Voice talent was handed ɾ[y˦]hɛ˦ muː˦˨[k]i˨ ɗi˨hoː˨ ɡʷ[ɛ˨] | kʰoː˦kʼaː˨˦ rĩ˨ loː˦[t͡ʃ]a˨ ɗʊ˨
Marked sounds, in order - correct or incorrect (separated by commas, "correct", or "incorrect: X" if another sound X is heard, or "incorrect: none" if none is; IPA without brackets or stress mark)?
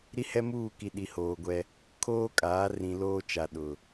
incorrect: i˦, correct, incorrect: ɛ˦, correct